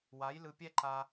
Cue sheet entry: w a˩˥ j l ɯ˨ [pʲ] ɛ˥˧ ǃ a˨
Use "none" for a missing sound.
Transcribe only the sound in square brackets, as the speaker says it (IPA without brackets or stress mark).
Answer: pʲ